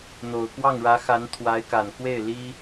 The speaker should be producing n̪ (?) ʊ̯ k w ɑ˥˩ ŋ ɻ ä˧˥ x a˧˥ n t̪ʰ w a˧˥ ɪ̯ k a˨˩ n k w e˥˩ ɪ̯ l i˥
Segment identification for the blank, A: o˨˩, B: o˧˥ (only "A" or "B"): A